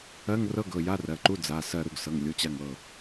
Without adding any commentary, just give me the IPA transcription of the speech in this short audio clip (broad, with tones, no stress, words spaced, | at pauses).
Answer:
ɜ˧˥˧ŋ rɤ˧˥˧ɡɤ˩˧˩ ja˧˥˧rɜ˩˧˩ǃu˧˥˧ d͡za˩˧˩ sɜ˧˩ɾu˧˩ɡ sɤ˩˧˩ŋ lʲu˩˧˩t͡ɕa˧˩ŋ ɤ˧˩